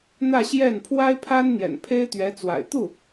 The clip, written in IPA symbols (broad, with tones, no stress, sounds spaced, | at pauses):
n̪ ä˥˧ ɕ j ɛ˥˩ n pʰ w a˥ ɪ̯ pʰ a˥ n n̪ j ɛ̰˨˩ n pʰ e˥ ɪ̯ t̪ ɥ ɛ˧˥ t͡s w a̰˨˩ ɪ̯ t̪ u˥˩